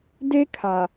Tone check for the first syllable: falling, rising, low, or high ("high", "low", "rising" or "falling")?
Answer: high